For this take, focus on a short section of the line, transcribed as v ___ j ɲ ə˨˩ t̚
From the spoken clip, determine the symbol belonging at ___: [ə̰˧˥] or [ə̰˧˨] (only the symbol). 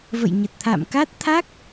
ə̰˧˨